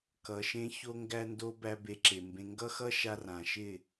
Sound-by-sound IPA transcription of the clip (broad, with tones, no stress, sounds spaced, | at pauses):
k ʌ˨ ʃ ẽ˦ ç o˦ ŋ ɡ æ˦ n d o˦ b æ˦ b e˧ ǁ e˨ m b ẽ˧ ŋ ɡ ʌ˦ x ʌ˦ ʃ a˧ r ã˨ ʃ ɪ˦˨